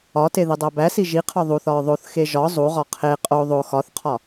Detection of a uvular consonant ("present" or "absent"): present